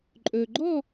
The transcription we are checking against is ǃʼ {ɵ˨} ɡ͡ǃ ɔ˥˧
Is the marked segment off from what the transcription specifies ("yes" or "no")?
no